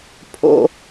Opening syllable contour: high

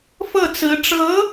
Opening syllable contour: falling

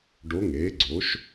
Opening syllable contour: rising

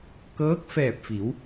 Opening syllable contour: rising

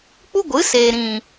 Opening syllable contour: high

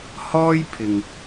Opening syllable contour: high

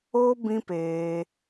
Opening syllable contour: high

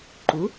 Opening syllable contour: rising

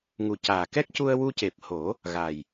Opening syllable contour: low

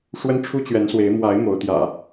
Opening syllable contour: high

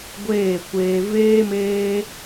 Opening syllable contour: falling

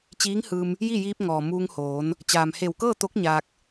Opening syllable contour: rising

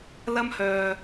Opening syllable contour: high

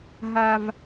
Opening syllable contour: high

